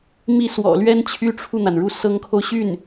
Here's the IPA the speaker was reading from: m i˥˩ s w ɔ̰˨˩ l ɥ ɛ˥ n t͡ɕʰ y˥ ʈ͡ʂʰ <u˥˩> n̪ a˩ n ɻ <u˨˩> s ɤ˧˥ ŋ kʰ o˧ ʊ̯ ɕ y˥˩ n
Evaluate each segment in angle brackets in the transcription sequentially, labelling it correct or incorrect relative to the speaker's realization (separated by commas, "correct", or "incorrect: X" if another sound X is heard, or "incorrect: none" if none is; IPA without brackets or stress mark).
correct, incorrect: u˥˩